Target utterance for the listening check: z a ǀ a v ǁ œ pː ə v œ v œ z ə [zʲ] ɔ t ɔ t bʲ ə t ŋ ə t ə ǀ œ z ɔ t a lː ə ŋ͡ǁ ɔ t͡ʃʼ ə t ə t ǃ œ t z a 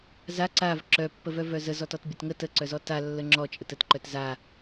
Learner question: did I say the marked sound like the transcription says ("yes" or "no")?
no